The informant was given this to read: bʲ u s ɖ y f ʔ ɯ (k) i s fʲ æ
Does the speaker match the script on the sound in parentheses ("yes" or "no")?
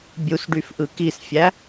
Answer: yes